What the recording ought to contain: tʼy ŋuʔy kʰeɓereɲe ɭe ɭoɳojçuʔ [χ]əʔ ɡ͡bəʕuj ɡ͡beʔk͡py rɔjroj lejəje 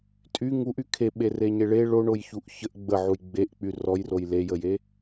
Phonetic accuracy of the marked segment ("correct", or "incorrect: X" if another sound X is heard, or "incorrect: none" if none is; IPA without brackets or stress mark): incorrect: ç